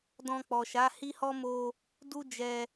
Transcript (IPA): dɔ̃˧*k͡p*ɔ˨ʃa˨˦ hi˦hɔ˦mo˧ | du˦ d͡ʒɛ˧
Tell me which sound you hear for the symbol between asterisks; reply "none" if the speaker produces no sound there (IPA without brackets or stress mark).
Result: k͡p